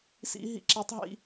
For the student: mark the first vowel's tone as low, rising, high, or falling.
high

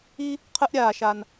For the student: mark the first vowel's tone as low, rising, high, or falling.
high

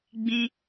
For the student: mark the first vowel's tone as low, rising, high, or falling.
high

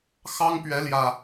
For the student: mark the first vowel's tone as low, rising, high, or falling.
high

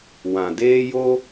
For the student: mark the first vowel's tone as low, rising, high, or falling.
low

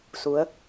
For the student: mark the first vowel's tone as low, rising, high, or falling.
rising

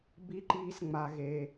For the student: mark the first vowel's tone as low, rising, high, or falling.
high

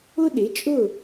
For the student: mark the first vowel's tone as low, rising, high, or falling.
high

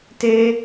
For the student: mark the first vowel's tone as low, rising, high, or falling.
high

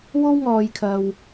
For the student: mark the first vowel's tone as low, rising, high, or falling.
high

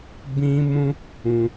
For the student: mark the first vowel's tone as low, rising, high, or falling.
high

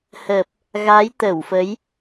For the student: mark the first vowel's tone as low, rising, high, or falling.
low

